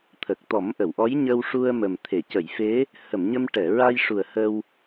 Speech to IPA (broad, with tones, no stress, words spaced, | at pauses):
t̪ʰə˨˩k̚t̪ɔ˨˩˦mʔə˨˩˨wʔɔ˧˥j ɲə˧wʂu˧ə̯ mə˨˩mt̪ʰe˨˩˨ cə˨˩˨jfe˧˥ | hə˨˩˨mɲə˧m ʈɛ˨˩˨ɹa˧jʂu˨˩ə̯ hə˧w